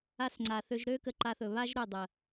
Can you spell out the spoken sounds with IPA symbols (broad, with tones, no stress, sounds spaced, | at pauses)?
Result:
a˧ s ŋ͡ǀ a˨ θ ø˧ ʒ ɾ ø˦ k ə˧ ǃ a˧ θ ɵ˨ β a˦ ʒ ɾ ɵ˦˨ dˤ ə˨